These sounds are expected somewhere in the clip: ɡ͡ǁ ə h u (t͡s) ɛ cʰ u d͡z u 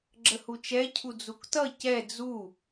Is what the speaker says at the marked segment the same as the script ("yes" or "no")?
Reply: no